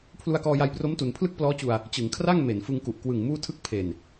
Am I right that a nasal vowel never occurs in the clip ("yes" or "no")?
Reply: yes